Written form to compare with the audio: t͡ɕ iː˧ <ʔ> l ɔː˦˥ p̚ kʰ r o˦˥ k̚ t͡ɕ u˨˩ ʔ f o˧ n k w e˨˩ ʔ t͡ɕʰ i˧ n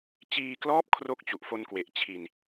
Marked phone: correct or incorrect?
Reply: incorrect